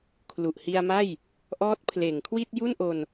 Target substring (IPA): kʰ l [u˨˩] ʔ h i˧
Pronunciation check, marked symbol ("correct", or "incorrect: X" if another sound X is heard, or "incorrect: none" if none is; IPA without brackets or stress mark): correct